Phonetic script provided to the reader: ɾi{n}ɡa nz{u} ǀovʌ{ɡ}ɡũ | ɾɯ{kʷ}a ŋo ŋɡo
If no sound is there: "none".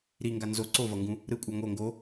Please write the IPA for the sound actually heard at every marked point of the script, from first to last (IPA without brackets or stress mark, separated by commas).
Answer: ŋ, o, ŋ, kʷʼ